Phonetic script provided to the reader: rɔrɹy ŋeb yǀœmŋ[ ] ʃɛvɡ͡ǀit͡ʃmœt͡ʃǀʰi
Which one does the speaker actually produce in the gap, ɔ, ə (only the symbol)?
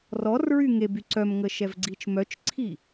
ə